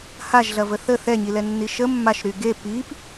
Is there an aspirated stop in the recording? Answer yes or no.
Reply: no